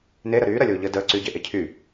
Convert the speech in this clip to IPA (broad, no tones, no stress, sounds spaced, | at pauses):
n e ɾ ə ɾ yː ɾ ɐ lʲ oː ʎ əː d əː ǀ y ɟ e ʔ e cʰ y